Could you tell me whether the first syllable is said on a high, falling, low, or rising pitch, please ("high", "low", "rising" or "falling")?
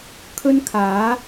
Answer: high